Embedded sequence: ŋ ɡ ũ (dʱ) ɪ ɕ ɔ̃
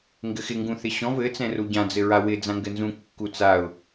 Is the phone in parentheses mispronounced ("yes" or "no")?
yes